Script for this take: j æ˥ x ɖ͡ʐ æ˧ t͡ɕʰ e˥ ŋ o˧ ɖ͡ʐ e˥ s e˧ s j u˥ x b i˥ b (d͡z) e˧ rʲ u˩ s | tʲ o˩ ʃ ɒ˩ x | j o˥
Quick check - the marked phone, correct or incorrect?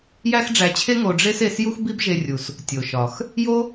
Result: incorrect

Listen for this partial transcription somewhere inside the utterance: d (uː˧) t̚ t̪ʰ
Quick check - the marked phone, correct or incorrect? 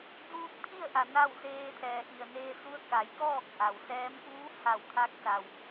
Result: correct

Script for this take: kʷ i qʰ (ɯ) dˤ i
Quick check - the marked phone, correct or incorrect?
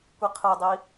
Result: correct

